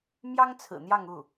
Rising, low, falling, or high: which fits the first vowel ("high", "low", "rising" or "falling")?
high